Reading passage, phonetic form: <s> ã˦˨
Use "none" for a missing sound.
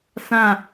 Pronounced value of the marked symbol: s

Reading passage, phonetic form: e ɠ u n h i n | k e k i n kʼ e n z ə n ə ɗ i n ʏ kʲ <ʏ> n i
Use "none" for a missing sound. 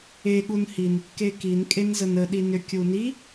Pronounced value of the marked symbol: u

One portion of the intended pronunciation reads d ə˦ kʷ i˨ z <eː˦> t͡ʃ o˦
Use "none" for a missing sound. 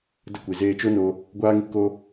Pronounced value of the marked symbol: eː˧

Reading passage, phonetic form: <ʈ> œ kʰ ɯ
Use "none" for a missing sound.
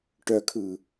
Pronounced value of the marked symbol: ʈ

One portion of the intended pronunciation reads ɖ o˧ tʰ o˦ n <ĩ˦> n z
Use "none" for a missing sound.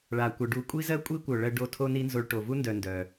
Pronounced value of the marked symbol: i˦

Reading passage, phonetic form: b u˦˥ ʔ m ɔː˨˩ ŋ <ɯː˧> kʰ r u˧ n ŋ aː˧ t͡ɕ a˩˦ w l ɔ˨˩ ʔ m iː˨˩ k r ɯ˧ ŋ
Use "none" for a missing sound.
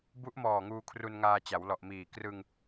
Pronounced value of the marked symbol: uː˧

